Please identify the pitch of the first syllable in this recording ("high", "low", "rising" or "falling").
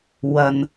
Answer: low